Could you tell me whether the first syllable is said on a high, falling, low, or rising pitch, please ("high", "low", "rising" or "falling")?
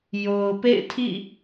low